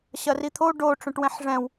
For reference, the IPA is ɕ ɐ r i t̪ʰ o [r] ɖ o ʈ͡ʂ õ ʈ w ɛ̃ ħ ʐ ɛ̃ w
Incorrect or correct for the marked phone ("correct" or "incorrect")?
incorrect